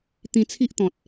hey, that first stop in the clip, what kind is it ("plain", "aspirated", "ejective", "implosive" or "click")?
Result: plain